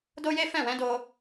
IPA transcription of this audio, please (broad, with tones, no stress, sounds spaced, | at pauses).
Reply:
d o˦ j e˦ f ɛ̃˦˨ w ɛ̃˨˦ d o˦